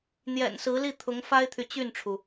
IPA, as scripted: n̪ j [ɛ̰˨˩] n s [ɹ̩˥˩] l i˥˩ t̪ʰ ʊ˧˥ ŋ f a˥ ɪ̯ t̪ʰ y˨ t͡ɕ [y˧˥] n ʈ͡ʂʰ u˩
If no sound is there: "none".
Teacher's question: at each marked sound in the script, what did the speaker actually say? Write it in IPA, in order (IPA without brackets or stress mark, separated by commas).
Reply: ɛ̰˨˩, ɹ̩˧˥, y˥˩